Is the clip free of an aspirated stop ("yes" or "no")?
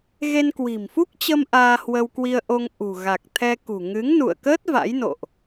no